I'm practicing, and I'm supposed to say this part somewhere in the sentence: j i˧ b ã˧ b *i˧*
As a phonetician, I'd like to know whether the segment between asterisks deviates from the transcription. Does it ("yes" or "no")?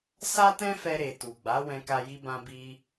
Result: no